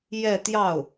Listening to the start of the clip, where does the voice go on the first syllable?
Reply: falling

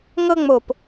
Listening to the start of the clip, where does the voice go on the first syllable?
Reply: high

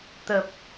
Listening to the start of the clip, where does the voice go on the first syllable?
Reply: low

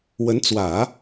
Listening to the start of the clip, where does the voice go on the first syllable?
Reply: rising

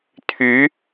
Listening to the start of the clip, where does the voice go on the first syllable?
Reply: rising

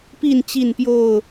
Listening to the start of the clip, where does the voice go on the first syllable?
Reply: falling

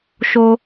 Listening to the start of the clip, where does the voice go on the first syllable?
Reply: high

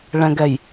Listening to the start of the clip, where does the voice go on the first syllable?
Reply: low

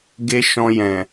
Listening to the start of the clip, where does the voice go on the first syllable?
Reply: high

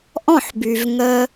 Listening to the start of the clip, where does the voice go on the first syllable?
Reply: falling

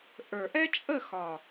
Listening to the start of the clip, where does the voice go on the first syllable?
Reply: low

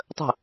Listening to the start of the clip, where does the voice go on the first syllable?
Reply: falling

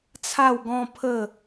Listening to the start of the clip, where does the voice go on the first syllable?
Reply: falling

